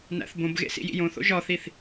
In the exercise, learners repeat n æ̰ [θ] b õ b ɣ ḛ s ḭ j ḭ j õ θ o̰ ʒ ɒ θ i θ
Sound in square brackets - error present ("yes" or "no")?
no